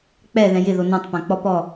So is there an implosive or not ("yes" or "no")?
no